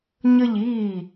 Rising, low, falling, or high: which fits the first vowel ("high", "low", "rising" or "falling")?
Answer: falling